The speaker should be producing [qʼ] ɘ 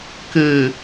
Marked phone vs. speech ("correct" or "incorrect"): incorrect